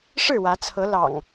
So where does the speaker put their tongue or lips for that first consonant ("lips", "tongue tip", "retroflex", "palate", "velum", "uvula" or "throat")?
retroflex